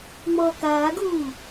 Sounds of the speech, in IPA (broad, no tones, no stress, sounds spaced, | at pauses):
ŋ͡m ɔ k aː ɡ uː